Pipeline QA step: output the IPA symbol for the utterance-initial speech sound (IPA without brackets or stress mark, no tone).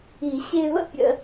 i